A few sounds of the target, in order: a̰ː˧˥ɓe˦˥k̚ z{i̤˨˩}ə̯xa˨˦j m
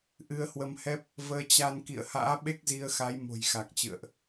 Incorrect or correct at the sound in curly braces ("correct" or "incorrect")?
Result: incorrect